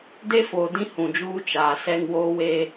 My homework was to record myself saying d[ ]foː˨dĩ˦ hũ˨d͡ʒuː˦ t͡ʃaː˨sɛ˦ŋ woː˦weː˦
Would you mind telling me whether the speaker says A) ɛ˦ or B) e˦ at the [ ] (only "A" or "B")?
B